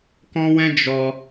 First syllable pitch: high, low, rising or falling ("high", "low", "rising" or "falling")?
high